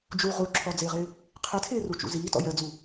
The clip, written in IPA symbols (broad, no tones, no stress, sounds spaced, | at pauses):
d͡ʒ u ʁ u ǁʰ ɔ d͡z ɪː ʁ ɪː | qʰ ɪ tʰ ɪː r u t͡ʃ ṵ z iː t ɔ̰ j ɜ d͡z u